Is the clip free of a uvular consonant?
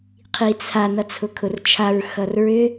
no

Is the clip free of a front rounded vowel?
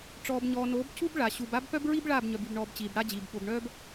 no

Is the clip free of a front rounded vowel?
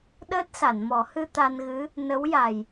yes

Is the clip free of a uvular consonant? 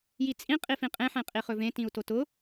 no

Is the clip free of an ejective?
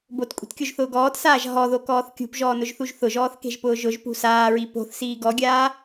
no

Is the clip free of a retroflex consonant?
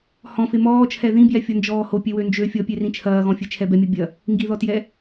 yes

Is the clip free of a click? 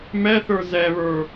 yes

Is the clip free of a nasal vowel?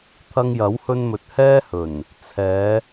yes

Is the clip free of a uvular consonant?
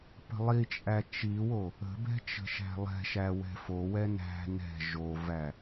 yes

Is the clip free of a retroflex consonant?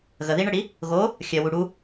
no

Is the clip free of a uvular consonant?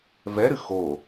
yes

